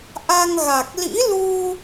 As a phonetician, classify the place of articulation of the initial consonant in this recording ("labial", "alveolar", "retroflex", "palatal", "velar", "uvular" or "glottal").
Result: glottal